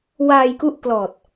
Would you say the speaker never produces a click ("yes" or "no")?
yes